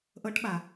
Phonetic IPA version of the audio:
ʔ ɤ ʈ ɓ a

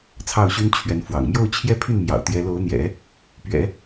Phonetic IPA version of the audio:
t͡sʰ ɑ˥˩ ʊ̯ ɕ y˥ n t͡ɕʰ ɥ ɛ˧˥ n f w ɑ̰˨˩ ŋ m j o˥˧ ʊ̯ t͡ɕʰ j ɛ˥˧ pʰ y˥˩ n m j ɑ̰˨˩ ʊ̯ t̪ j ɛ˧˥ l o˧˥ ʊ̯ n̪ j ɛ̰˨˩˦ | p ɥ ɛ̰˨˩˦

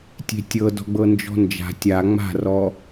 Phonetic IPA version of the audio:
tʲ e̤ tʲ ɤ d ɔ̤ ɡ͡b ɤ n d͡ʒ ɔ̤ n d͡ʒ a̤ tʲ a ŋ͡m a̤ r ɔ

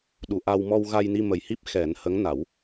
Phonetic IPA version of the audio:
ɗ u˨˩ ʔ a˧ w m ɔ˧ w ɣ a˧ j n i˧ m ə˨˩ j h i˦˥ p̚ x ɛ˨˩˦ n h ə˧˥ ŋ n a˨˩˦ w

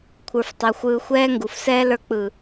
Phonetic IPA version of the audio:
kʷʰ ə˞˧ f tˤ a˧ xʷ ɯː˧ xʷ ɛː˦ ŋ ɡ u˨ f s ɛː˦ l ə˞˧ k͡p ɯ˨

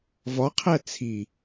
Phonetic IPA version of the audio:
v ɒ qʰ æ t͡sʰ i

